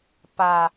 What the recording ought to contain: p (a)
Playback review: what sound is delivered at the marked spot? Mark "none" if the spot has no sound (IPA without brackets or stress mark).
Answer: a